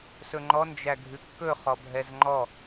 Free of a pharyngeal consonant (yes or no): yes